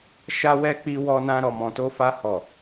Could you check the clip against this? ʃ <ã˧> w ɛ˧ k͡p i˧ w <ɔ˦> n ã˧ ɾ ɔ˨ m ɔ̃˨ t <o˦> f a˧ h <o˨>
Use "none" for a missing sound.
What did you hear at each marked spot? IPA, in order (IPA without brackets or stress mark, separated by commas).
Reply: a˧, ɔ˧, o˧, ɔ˨